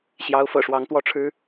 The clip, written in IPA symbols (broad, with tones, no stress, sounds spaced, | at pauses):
ɕ j ɑ˧˥ ʊ̯ f ɤ̰˨˩ ʂ w ɑ˧˥ ŋ t̪ w ɔ˥˩ ʈ͡ʂʰ ɻ̩˥